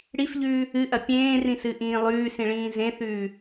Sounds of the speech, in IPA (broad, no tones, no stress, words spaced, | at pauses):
ɽifʎʉː | ɨʔɐ pʲẽːrĩsɨʔĩː lˠʉːsĩɭĩː zẽθʉː